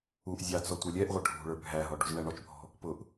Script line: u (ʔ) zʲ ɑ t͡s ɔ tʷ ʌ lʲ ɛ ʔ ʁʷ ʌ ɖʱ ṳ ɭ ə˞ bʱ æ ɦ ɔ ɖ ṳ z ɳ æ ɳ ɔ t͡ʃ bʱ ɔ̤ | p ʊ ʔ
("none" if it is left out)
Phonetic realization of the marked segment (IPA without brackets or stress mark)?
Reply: ʔ